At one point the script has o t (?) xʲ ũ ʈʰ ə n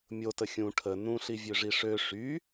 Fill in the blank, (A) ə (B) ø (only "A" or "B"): A